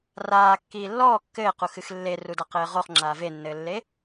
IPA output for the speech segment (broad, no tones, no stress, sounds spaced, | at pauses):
r aː kː iː lː ɔː kː ɘː q u x ɨ x lː e r u d a q ɘː ʁ o χ ŋ͡ǁ aː v e nː ɘː lː e